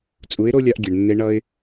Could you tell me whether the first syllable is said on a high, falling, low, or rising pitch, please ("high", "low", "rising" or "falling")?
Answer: rising